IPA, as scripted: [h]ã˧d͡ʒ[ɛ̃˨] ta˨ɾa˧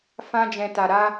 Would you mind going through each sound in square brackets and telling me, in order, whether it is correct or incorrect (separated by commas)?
incorrect, correct